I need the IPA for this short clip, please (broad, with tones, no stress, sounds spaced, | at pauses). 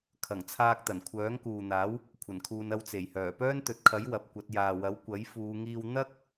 kʰ ɐ˨˩ ŋ t͡sʰ aː˧ k̚ t̪ ɐ˨˩ n kʷʰ œː˨˥ ŋ k uː˨ n̪ aː˨˥ w | kʷʰ ɐ˨˩ n kʰ uː˨ n ɐ˧ w t͡s e˨˩ j h œː˨˩ p œː˥ n t̪ ɵ˨ t̚ kʰ ɐ˨˥ j w ɐ˨˥ p̚ kʷ ɐ˨˥ t̚ j aː˨ w ɐ˨˥ w kʷ ɐ˨˥ j f uː˨˧ ŋ iː˧ w n̪ ɐ˥ k̚